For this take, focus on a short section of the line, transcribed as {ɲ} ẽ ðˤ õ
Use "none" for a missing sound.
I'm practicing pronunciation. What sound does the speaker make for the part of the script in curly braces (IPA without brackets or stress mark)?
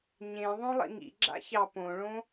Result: ɲ